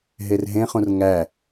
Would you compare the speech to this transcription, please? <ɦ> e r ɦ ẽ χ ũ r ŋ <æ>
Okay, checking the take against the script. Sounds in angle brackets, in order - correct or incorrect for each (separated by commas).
correct, correct